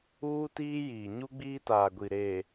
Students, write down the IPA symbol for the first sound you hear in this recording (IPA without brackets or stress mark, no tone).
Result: uː